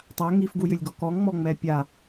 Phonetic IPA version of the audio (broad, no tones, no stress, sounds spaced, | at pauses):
tˤ a ŋ i f ɡ u j ʏ lʲ ɡ ɔ k ɔ ŋ ŋ͡m ɔ ŋ͡m ɛ pʲ a